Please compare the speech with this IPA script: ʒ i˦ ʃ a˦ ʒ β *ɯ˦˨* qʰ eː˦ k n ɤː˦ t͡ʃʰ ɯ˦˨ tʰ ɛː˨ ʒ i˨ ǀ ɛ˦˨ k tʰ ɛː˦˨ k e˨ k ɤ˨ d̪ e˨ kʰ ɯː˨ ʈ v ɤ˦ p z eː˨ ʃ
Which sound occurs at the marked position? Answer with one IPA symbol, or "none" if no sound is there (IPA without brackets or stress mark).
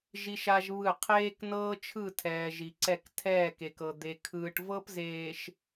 ɯ˦˨